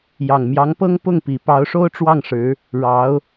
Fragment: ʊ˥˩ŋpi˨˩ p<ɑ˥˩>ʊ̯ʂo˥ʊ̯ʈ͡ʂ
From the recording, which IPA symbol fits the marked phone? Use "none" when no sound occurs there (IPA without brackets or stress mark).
ɑ˧˥